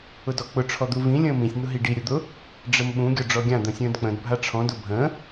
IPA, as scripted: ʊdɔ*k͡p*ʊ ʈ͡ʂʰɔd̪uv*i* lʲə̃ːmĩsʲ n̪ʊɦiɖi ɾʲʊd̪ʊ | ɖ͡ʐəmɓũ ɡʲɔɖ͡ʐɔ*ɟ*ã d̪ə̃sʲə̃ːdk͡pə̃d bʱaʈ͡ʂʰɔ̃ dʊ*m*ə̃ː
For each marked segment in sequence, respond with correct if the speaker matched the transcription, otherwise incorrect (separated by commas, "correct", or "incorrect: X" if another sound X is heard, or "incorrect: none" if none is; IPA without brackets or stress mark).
correct, incorrect: ĩ, incorrect: ɡʲ, incorrect: bʱ